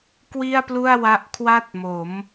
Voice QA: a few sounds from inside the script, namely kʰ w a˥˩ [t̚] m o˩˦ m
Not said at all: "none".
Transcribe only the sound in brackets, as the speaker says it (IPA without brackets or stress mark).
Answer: t̚